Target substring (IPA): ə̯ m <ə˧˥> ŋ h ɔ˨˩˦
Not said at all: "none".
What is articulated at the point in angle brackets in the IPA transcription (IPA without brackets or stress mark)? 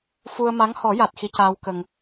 a˧˥